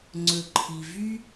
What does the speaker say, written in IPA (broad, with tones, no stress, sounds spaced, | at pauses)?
ŋ͡ǀ ɵ˩ ǃʰ i˩ v y˥